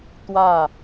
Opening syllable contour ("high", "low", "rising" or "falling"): falling